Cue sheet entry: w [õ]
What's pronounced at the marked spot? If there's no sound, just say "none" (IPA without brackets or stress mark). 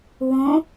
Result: õ